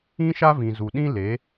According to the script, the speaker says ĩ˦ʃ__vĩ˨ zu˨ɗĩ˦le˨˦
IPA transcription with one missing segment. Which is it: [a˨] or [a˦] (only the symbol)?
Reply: a˦